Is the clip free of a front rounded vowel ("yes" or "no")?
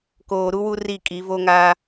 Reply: yes